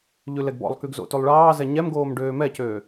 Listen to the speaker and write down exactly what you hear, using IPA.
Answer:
ʎ ʉ l ɛ ɡ b ɔ̰ lˠ k y ɡ z o̰ t ʉ lˠ ɭ ɑː z ɛ ɲ ɛ m ɡ oː m ɖ øː m ɛ c øː

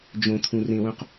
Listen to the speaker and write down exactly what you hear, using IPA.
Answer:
d͡ʒ õ t̪ʰ ũ r ẽ w ũ q

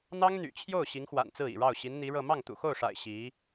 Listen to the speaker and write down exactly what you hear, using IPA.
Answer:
n̪ ɑ˥ ŋ n̪ y̰˨˩ t͡ɕʰ j o˥˩ ʊ̯ ɕ i˧˥ ŋ x w a̰˨˩ n t͡s ɹ̩˥˩ ḭ˨˩ ɻ ɑ˥˩ ʊ̯ ɕ i˧˥ n n̪ i˧˥ ɻ ɤ˥˧ m ɑ˥˩ ŋ t̪ ṵ˨˩ x o˥˩ ʊ̯ ʂ a̰˨˩ ɪ̯ ɕ i˧˥

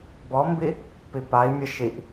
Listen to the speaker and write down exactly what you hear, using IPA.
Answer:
b ɔ m b i | p i p a i̯ mʲ ɛ ʃ i ʔ

